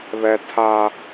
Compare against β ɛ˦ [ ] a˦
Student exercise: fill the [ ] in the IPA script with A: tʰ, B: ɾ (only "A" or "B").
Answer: A